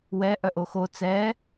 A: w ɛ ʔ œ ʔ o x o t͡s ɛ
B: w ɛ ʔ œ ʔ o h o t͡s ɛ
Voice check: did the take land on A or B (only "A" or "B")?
A